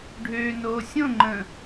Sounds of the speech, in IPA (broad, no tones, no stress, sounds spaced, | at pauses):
ɖʱ øː n oː sʲ õ ŋ͡ǃ ə̃ː